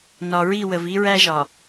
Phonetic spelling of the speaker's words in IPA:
n ɒ˨ ɹ i˦˨ w ə˨ v i˦ ɹ æ˦ ʒ ɒ˨

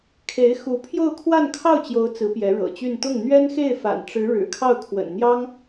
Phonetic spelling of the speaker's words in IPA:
kʰ e˧˥ ɪ̯ x u˧˥ pʰ j o˥˧ ʊ̯ kʰ w a˥˧ n kʰ ɑ˥˩ ʊ̯ t͡ɕ j o˧˥ ʊ̯ t͡s ɹ̩˧˥ p j ɛ˧˥ ɻ ɤ̰˨˩ t͡ɕ y˥˧ n t̪ ʊ˥˩ ŋ n̪ ɥ ɛ˥ n x e˥˩ ɪ̯ f a̰˨˩ n ʈ͡ʂ ɻ̩˧˥ ɻ ɻ̩˨˩ kʰ ɑ˥˩ ʊ̯ kʰ w ə̰˨˩ n n̪ j ɑ˥ ŋ

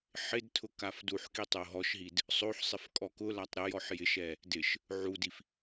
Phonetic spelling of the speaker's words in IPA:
ħ ɪ d tʰ ʊ k a f d u ħ k i tˤ o ɦ ɔ ʃ ɦ i d | sˤ o ħ sˤ ɪ f kʼ ɔ k ʊ l a tˤ ɾ ɪ j ɔ ħ j ɪ ʃ ɛ | d ɪ ʃ | ʕ u d i f

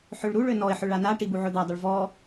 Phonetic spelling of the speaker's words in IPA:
ħ ø ɭ ɾ u ɭ ø n ɔ ɪ̯ ħ ø ɭ a n a ʈ i b u ʕ ɵ d̪ æ dˤ ɵ ɭ v ɔ

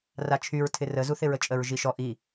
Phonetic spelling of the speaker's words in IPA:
r a t͡ʃʰ y ɹ tʰ ɪ r ə z u θ ɪ ɹ ə t͡ʃʼ ə ɹ ʒ i ʃ ɔ ʔ i

